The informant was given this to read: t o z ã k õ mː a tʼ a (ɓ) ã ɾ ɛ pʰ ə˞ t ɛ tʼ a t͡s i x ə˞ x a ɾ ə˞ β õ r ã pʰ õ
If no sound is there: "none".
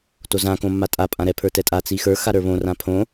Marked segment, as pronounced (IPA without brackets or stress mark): pʼ